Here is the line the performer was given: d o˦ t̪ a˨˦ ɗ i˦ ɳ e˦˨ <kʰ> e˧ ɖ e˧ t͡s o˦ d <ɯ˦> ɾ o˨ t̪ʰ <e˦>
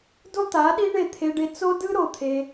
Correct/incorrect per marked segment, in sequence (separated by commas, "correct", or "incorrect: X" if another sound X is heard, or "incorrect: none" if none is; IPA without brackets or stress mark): incorrect: t̪ʰ, correct, incorrect: e˧